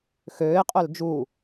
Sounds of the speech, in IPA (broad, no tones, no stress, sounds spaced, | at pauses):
x øː ɪ̯ qʼ œ l d͡ʒ u